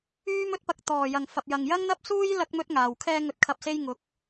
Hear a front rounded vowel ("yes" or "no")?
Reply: yes